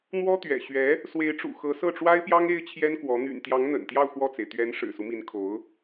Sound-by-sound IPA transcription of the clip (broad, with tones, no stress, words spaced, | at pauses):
n̪wɔ˥t̪ɥɛ̰˨˩ ɕɥɛ˧˥ | swe˧˥ɪ̯ʈ͡ʂṵ˨˩xɤ˧˥ sɤ˥˩ʈ͡ʂwa˥ɪ̯pjɑ˥ŋ e˥ɪ̯t͡ɕʰjɛ˥nkwɔ˧˥ n̪y̰˨˩nt̪jɑ˧˥ŋ n̪ə̰˨˩nt̪jɑ˥˧ʊ̯ xwɔ˥˩t͡se˩ɪ̯ t̪ɥɛ˧˥n ʂɻ̩˨˩su˦mi˧˥nkʰo˧˥ʊ̯